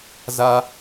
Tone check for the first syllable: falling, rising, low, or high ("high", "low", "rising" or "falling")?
high